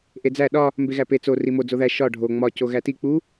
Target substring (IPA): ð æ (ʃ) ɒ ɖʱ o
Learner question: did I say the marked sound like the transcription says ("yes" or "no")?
yes